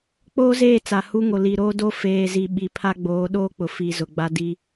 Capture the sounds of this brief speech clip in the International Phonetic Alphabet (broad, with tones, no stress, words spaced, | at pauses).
k͡poː˦zeː˦˨ t͡sa˨ hu˦ŋo˨ li˨ɾoː˦do˦ feː˨zi˨ ɓi˨pʰa˦ ɡ͡boː˨˦ɗoː˦k͡pʊ˨fi˨ zʊ˨ɡ͡ba˦di˦